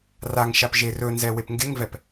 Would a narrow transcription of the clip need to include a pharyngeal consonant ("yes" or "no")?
no